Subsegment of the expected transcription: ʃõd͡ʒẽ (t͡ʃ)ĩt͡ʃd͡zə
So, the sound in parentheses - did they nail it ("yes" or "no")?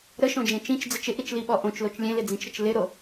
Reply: yes